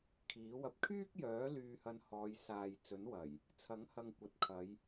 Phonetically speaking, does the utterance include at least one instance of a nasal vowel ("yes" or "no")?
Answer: no